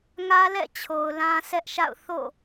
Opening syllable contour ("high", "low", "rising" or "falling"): high